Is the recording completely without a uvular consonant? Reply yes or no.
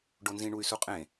no